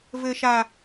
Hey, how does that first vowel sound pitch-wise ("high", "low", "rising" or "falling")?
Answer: low